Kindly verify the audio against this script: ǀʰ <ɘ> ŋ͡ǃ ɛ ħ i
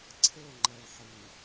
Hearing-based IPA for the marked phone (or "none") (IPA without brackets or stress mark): ɘ